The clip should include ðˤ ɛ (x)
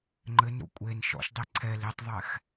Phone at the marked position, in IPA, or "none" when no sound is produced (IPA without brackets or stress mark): x